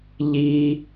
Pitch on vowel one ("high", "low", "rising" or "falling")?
high